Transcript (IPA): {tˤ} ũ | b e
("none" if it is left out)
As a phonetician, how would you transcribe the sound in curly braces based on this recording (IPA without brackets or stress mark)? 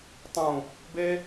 tˤ